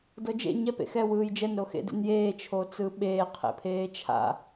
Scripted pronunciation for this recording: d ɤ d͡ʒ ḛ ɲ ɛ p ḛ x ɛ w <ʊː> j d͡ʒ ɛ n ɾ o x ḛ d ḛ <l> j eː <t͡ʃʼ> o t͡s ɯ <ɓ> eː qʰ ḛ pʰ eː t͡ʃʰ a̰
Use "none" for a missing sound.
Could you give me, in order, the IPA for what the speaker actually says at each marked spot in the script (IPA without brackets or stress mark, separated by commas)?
ɯː, n, t͡ʃʰ, ɓ